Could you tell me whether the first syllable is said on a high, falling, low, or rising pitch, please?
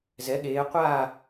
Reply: rising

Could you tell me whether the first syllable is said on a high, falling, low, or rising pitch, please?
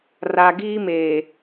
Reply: low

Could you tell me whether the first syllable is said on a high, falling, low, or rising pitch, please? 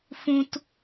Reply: high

